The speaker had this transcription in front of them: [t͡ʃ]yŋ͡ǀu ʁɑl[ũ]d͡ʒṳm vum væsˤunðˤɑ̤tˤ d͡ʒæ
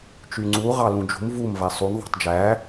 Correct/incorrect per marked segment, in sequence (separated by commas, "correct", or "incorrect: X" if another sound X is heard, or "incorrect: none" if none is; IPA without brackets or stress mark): correct, correct